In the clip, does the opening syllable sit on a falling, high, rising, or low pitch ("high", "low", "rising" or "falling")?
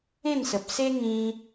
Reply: falling